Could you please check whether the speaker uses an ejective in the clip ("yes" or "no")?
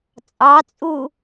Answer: yes